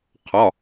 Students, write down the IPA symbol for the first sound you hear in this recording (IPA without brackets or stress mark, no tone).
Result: qʰ